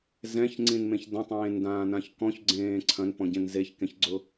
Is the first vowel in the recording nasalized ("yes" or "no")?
yes